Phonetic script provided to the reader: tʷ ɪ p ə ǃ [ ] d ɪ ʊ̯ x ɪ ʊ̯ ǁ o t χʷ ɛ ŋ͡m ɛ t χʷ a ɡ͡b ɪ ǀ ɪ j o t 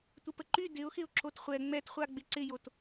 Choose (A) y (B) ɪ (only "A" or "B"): A